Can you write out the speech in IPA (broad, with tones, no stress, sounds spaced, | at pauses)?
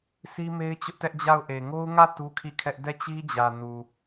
s i˦ m e˦ ɪ̯ t͡ɕ ʊ˦ ʔ t ɛ˦ ʔ d͡ʑ a˦˨ ʊ̯ ʔ e˨ ŋ o˦ ʊ̯ ŋ ä˦˨ t u˦ kʰ i˦˨ kʰ ɛ˦ ʔ d ɛ˦˨ t͡ɕ i˦ d͡ʑ ä˨ n u˨